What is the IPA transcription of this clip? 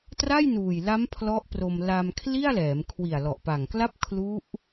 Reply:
t r a˥˩ j n uː˨˩ j l a˦˥ m pʰ l ɔ˦˥ ʔ p r o˧ m l a˧ m kʰ l i˥˩ a̯ l ɛː˩˦ m kʰ w i˨˩ a̯ l ɔ˨˩ ʔ p a˨˩ ŋ k l a˥˩ p̚ kʰ l u˦˥ ʔ

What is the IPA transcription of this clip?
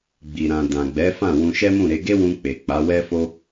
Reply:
ɡ͡b i˨ ɾ ã˨ d ã˨ ɡ͡b ɛ˨˦ f ã˦˨ w ũ˧ ʃ ɛ˦ m ũ˦˨ ɾ e˨˦ ɡ e˦ w ũ˧ k͡p e˨ k͡p a˨˦ w ɛ˦ f o˦

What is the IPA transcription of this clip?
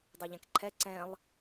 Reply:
dˤ i ʎ ɛ̃ k ǃʰ ɛ ǀ ɛ̃ lˠ

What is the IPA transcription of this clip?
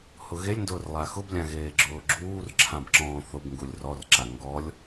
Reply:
h ʊ ɣ e lʲ n d ʊː r lˠ a x ʊ b lʲ ã ɣ eː ɡ͡ǁ ʊː ɡ͡ǁ uː r ǁʰ ã b ǁ ɔ̃ː θ ʊ b ŋ ɡ u lʲ r ɔ r ǁ a ŋ ɡ ɔ lʲ

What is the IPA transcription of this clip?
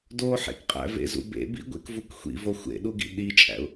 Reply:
d o ħ ḛ k qʼ æ̰ v ḛ z ṵ b ḛ b ḭ ɡʷ ḛ k v u k xʷ ḭ v o xʷ ḛ ɗ u ɡ ḭ ɗ i t͡ʃʼ æ̰ ʊ̯

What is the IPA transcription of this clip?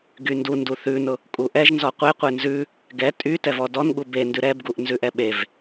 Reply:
ɡ y n d u n d u θ ʉ n ʊ | kʼ u ʔ ɛ ʒ n z ɔ qʷ e qʷ e n z ʉ | ɡ ɛ tʼ y t ɛ v ɔ d ɔ n ɠ u b e n d ʉ ɾ ɛ b ɡ u ʔ n z ʉ ʔ ɛ ɓ e v

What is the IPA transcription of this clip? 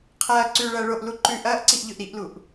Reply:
qʰ ɐː ǀ ʉ ɭ ɐː ɭ o ʔ l u ǃ ʉ ʔ ɐː ʔ ǀ i ʔ ʎ ɵ ʔ ɾ i ʔ l u ʔ

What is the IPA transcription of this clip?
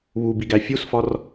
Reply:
β u b i ɡ æ fʲ u s f ɒ r

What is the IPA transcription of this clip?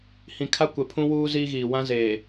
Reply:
h ĩ˨ kʰ a˦ kʷ ɛ˨ pʰ ũ˦ w uː˦ z iː˦ ɣ iː˨ w ã˦ z eː˨

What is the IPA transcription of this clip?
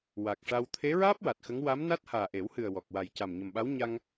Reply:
w a˨˩ k̚ ʂ a˧ w t̪ʰ e˧˥ ɹ aː˦˥ p̚ w a˨˩ t̚ x ə˧˥ ŋ w a˧˥ m n a˦˥ t̚ h aː˨˩ ʔ e˨˩˦ w h ɨ˨˩ ə̯ w ɔ˨˩ k̚ w a˨˩ j c a˨˩ m ɲ ə˨˩ m ɓ a˧˥ w ɲ a˧ ŋ

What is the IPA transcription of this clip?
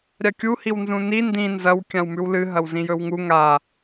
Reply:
ɾʲ a kʲ u h i w n z ũ n i n d ĩ n z ɐ w kʲ ã w m ʉ w l ɨ ɦ ɐ w z ĩ j ɵ w ŋ u ŋ a

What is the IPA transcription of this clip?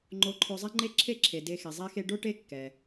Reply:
ŋ͡ǃ o˧ ǃʰ o˧ zˤ ɛ˥ ŋ͡ǃ e˥ ǁʰ e˥ ǁʰ e˩ d e˧ x e˩ zˤ e˥ x e˥ ɖ o˥ ʈ e˥ kː ɛ˩

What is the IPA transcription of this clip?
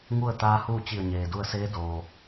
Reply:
ŋ u˥˨ ə̯ t̪ aː˧˥ h uː˥˨ t͡ɕ i˧˩ ə̯ ɲ eː˩ d u˧ ə̯ s eː˧˥ d oː˩

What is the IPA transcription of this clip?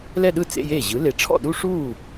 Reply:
l ɛ˥˧ ɗ ɯ˥˩ t͡s ḛ˧˥˧ j eː˥˩ ʑ ɯ˩˥ l e˨˩˦ ʈ͡ʂʰ ɔ̰˥˩ ɗ u˥˧ ʂ uː˥˩

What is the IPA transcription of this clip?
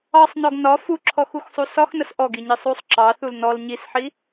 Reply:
ɑ sˤ n ɔ ɡ n ɒ f u ǁʰ ɔ x u x sˤ u s ɒ x n ə s ʔ ɔ ɡ i ɲ i sˤ u sˤ ǁ ɑ θ u l n ɔ l ɲ i s ħ i

